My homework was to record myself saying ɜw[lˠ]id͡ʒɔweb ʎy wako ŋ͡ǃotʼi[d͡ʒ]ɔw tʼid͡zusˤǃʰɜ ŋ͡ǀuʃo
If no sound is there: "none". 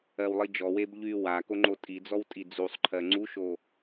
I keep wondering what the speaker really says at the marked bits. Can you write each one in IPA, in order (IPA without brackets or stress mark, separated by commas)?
lˠ, d͡z